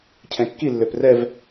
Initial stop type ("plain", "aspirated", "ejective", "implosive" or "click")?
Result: aspirated